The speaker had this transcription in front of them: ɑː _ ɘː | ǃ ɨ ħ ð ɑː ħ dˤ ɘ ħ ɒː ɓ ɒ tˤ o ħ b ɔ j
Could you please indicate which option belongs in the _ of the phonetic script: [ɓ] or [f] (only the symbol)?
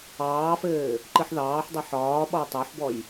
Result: f